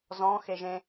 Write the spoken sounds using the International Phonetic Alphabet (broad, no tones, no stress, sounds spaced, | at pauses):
z ɔ̃ x e ʒ ẽ